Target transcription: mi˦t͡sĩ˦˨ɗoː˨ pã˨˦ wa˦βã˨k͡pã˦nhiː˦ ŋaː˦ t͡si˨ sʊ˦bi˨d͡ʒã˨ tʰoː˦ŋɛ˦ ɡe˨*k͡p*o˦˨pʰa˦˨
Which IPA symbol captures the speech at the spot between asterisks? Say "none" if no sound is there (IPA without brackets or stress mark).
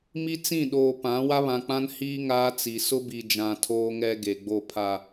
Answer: ɡ͡b